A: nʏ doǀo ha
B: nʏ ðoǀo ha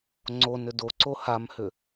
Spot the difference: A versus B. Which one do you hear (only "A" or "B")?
A